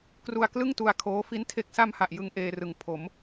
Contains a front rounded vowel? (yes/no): no